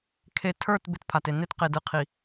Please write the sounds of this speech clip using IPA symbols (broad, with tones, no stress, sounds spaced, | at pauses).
kʰ e˨ tʰ ə˞˦˨ t b ɪ˦ t pʰ a˨ t e˨ n e˦ t q e˨ d ɯ˨ qʰ i˨